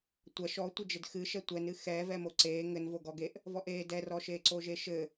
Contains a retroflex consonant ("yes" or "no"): no